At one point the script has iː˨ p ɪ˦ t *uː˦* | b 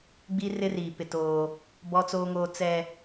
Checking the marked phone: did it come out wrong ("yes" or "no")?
yes